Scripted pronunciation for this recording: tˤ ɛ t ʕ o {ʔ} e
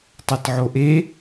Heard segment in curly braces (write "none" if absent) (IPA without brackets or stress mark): ʔ